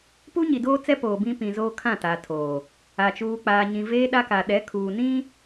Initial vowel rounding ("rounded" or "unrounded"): rounded